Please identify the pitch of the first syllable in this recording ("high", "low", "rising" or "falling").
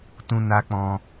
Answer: high